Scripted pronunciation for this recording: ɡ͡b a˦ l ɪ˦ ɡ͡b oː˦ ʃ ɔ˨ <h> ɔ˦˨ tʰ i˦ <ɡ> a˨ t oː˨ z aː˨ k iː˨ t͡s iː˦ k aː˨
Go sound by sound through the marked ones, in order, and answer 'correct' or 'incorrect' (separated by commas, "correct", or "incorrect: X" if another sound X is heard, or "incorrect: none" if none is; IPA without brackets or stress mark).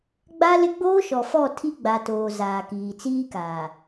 incorrect: f, incorrect: ɡ͡b